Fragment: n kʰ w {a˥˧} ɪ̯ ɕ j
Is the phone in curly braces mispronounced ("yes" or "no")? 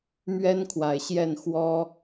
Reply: yes